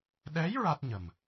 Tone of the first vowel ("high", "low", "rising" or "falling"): rising